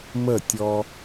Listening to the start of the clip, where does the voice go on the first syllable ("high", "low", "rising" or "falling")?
falling